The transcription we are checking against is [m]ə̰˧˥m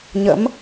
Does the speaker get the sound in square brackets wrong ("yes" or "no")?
yes